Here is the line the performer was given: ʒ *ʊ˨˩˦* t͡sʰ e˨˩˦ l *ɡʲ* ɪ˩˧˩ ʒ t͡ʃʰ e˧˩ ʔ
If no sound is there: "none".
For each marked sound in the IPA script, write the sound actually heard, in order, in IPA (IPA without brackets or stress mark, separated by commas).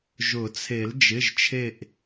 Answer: ʊ˨˩˦, d͡ʒ